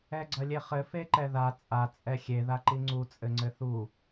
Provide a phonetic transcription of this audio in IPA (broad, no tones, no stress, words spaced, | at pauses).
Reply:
ɛɡ͡ǀɐlʲeχɘ feǃɛða t͡sʼa t͡sʼɛxʲe ðaǃiŋ͡ǀu t͡sʼɘŋ͡ǀɘθu